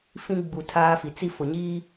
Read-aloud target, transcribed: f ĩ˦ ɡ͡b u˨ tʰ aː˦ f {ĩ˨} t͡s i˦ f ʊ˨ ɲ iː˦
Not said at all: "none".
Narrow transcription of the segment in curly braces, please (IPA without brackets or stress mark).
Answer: i˨